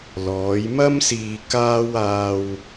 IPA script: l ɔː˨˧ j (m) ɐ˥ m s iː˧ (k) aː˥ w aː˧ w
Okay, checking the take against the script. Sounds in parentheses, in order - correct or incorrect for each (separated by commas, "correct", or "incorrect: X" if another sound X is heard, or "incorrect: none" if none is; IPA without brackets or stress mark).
correct, correct